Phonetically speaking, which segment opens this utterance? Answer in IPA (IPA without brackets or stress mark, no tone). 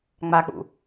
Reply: ŋ͡m